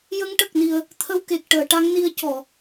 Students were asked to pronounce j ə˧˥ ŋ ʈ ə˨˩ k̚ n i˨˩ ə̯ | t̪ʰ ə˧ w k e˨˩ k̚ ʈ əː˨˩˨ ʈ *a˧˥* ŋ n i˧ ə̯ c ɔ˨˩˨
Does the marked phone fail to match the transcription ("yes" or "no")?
no